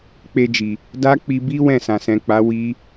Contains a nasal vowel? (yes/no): yes